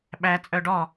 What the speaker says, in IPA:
ɓ æ t͡sʼ œ ɖ ɔ

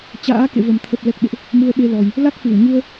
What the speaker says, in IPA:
t͡ɕ a̰ː˧˥ k ḛ˧˨ v ə˨˩ m t̪ʰ ə˨˩ p̚ l ɛ˨˩ k̚ ɓ ḛ˧˨ ʔ | m u˧ ə̯ ɓ e˧ l ɔ˨˩ j | l a˦˥ k̚ f ɨ˧˩ w ɲ u˧ ə̯

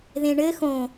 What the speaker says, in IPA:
ð ẽ ɳ ɘ x õ

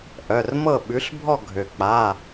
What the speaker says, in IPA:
ʔ œ˩˧˩ r m ɤ˥˨ ɓ ʉ˩˥ ɬ bʱ ɔ˥˨ ɡʱ ø˩ k͡p a˩˧˩

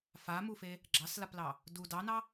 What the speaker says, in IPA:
f a m u f e | ɡ͡ǁ ɑ s l a p l ɑ | d u d ɑ n ɑ

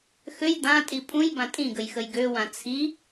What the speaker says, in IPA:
x ø j d̪ ã tʼ i pʼ ũ j b ã tʼ ĩ ɡ ə j x ə j ɡ ø w ã t͡sʰ i

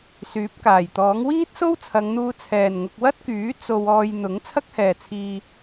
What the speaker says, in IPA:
s yː˨˥ p̚ k aː˨˩ j t̪ ɔː˨˥ ŋ w iː˥ t̚ s o˥ w t͡sʰ ɐ˨˧ ŋ n̪ uː˧ t͡sʰ ɛː˨ n ŋ ʊ˧ k̚ w ɐ˥ t̚ k yː˨˥ t͡s o˧ w ɔː˧ j n̪ ʊ˨˥ ŋ t͡sʰ ɐ˥ k̚ h ɛː˨ t͡sʰ iː˧

